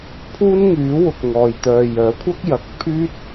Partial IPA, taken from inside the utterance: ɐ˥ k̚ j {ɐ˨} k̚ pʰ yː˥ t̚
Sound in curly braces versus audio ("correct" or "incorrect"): correct